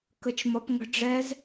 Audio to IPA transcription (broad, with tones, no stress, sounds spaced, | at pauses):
k ə˦ t͡ʃ m ʌ˦ p ŋ ə̤˦ ɖ͡ʐ ɛː˦ z